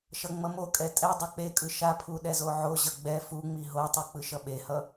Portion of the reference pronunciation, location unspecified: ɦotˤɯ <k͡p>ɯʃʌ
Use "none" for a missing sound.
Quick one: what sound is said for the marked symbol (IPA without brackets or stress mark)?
k͡p